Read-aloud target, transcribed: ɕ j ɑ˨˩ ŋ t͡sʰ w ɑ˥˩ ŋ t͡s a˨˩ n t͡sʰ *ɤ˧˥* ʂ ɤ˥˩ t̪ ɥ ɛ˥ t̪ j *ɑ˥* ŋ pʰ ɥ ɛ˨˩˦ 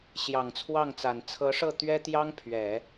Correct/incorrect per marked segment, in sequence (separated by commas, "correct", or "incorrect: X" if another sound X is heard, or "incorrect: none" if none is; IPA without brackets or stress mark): correct, correct